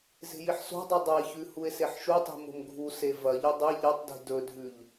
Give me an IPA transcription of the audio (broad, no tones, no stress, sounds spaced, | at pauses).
z e̤ j i ħ s o̤ dˤ ɵ dˤ ɐ e̯ ç ʉ h u e̯ s e ħ ʃ u tˤ i̤ m o̤ m ɡʱ u s e v ɐ ʎ ɵ dˤ e ʎ ɐ tˤ d i̤ d ɵ dʱ ʉ ʎ